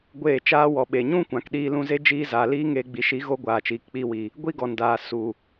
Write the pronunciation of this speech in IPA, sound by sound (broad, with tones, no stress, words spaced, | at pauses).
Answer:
ɡʷeː˦˨t͡ʃaː˦ wɔ˨ɓe˨ɲũ˦ kʷã˨kɗiː˧lũ˧ze˦ d͡ʒiː˧zaː˨ liː˦ŋeː˧ɡ͡bi˨˦ ʃi˨˦ɣo˧ ɡʷaː˨t͡ʃiː˨kk͡piː˧wi˨ | ɡʷi˦ɡɔ˨ndaː˨ su˨